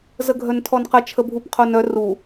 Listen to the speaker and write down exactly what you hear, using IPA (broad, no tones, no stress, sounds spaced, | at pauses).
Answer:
z ə ɡʱ œ n tʰ ɔ n q ə t͡ʃʰ ə bʱ u p qʰ o n œ r u